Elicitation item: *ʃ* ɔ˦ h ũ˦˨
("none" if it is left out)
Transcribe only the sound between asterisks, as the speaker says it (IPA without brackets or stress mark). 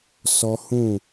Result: s